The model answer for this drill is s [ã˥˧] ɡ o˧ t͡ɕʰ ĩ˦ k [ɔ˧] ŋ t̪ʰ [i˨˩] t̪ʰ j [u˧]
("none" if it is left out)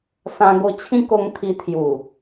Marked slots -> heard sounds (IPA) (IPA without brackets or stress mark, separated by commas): ã˧, o˧, i˧, u˨˩